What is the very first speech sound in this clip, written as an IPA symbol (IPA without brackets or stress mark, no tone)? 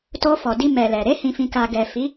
t